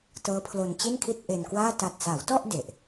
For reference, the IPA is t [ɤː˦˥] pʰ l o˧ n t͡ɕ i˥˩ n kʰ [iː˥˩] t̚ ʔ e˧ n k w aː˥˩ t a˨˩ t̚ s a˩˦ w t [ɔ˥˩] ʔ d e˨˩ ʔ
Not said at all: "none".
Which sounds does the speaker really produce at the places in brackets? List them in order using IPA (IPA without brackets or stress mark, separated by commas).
ɤː˦˥, i˥˩, ɔ˥˩